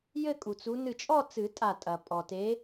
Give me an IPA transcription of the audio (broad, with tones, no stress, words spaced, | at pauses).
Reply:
jɘ˥˧kʼu˩t͡su˨˦ nɨ˧˩t͡ʃʼɔ˥˧t͡sɨ˨˩˦ tʼa˧˩tʼɐ˩ pʼɔ˩te˨˦